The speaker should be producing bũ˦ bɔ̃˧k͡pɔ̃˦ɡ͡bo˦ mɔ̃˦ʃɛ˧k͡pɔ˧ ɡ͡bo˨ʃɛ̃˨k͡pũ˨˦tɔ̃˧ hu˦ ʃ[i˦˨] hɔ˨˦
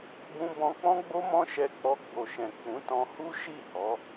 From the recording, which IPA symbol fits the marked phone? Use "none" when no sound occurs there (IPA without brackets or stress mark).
i˦˨